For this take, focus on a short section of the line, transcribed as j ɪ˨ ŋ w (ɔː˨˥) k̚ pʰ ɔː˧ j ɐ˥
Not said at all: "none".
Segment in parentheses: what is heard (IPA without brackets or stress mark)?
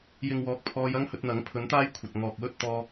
ɔː˨˥